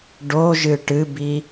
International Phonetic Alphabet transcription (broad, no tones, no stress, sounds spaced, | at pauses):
ɖ o ʒ ɨ ʈ ɨ b i